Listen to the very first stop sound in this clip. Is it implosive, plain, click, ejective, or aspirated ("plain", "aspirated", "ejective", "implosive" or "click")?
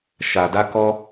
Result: plain